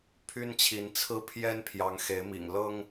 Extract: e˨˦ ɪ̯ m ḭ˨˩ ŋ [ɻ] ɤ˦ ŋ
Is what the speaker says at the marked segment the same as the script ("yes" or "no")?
no